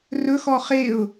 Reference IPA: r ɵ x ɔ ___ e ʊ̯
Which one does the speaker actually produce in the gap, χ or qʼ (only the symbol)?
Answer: χ